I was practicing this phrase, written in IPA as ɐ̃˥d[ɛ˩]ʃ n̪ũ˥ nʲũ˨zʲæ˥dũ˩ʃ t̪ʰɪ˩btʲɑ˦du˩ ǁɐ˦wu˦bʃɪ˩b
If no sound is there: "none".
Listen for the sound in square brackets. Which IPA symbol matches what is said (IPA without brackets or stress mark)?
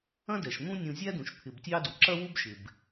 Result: ɛ˩